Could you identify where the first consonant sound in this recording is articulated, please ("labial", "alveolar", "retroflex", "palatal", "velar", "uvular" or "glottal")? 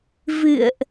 labial